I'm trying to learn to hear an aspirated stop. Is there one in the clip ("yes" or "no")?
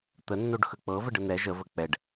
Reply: no